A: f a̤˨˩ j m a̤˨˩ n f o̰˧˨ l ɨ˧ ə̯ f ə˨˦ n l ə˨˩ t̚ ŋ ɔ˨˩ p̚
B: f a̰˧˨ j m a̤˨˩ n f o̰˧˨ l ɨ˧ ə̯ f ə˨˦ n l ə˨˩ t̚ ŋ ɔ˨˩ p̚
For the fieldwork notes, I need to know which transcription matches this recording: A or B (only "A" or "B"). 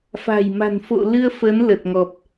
A